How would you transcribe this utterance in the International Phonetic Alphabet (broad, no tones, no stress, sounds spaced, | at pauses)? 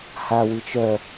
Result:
h a w ɨ t͡ʃ œ